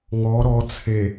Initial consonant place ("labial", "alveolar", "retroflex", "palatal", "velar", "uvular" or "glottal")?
velar